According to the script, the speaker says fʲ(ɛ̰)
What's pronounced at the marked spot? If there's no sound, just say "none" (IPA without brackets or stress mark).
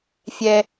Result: ɛ